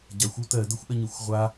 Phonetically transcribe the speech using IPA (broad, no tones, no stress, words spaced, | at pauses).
ɟaxʷu tɜdəxʷʔɜɲɯxʷ ʁʷa